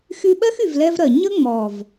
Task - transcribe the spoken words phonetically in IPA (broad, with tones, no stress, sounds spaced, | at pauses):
x y˦ ɓ ɜ˦ x y˨ v l ɛ˧ v ɾ ɜ˨ ɲ ə˦ ŋ͡m ɔ˨ v